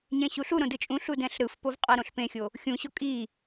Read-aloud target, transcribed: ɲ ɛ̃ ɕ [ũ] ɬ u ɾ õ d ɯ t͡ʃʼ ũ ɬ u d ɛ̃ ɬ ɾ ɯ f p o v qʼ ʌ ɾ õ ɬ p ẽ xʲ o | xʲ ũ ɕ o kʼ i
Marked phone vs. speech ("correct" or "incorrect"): incorrect